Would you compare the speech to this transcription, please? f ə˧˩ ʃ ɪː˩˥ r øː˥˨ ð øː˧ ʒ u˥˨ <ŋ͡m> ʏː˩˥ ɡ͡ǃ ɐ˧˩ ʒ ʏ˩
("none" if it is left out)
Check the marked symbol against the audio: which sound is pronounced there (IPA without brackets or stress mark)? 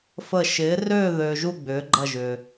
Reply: ɡ͡b